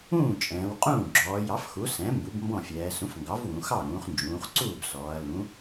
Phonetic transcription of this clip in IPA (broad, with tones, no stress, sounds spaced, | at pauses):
ũː˥˩ t͡ʃʼ ɛ̃ː˩˧ w qʼ ũː˥˩ ɡ͡ǁ ɔː˩˧ j ɑ˩˥ f x u˩˥ s ɛ̃˩˥ m b u˩˥ b m b ɔ̃˥˩ fʲ ɛː˩˧ s ũ˩˥ f ŋ ɡ ɑ˩˥ v w ũ˩˧ x ɑ˥˩ ɾ ũː˩˧ χ n d͡ʒ ũː˩˧ χ ǀ uː˥˩ b s ɔː˩˧ ɐ̯ l ũ˩˥